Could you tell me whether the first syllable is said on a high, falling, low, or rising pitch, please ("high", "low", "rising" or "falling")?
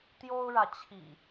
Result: high